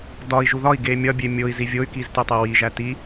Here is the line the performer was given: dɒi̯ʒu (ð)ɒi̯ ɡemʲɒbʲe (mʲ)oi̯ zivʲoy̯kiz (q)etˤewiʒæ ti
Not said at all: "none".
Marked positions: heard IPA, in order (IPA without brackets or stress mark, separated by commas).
ð, mʲ, t